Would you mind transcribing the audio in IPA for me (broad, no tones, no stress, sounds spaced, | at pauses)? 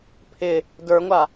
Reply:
pʰ ɪ | d ə˞ ŋʷ a